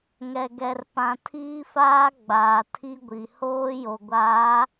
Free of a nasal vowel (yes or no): no